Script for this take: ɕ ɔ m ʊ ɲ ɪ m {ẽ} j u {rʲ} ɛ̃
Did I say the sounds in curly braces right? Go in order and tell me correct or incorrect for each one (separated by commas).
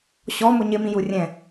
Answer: incorrect, correct